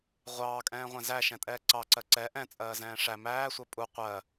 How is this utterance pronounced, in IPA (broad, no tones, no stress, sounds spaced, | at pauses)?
ʁʷ ɑː kʼ ɛ̃ː ʁʷ æ̃ z æ ʃ ɛ̃ tʼ ɛː ǀ ɑ ǀ ɜ ǀ ɛ ʔ ɛ̃ t͡sʼ ɜː z ɛ̃ː ʂ æ m æː sʷ ɜ pʼ u qʷ ɜ